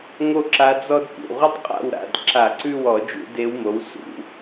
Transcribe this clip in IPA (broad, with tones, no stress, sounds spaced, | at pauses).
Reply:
ŋ o˥ ǁ a˧˥ d͡z ɔ˥ d p ṵ˩˧˩ ʁ u˥ tˤ qʼ a̰˥˨ w ɾ a̰˩˧˩ d ǁ a˧˩˧ ǀ ʉ˥˨ w ɔ˧˩˧ d͡ʒ ṵ˧˩˧ d e˧˥ w m o˩˥ w s ṵ˧˩˧